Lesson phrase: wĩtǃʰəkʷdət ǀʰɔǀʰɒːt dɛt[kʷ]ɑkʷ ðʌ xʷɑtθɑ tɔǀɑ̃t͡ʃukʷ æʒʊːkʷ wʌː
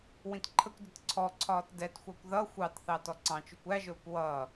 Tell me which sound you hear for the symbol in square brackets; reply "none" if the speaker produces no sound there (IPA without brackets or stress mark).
xʷ